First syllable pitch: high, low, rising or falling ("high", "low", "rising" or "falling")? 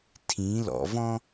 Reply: rising